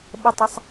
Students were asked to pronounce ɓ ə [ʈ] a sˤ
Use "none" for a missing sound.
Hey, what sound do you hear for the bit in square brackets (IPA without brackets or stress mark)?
tˤ